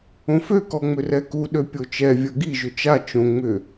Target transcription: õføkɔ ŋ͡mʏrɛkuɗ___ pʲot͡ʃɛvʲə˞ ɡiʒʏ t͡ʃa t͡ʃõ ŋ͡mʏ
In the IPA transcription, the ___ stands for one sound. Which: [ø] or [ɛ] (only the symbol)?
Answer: ø